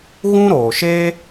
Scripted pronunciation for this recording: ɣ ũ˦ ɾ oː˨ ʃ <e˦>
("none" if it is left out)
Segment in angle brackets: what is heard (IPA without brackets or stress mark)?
eː˦